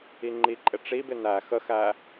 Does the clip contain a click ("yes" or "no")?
yes